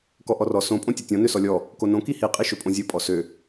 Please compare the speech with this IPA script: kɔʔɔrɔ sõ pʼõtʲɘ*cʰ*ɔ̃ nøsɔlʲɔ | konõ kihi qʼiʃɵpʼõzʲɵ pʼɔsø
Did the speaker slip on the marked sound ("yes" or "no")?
yes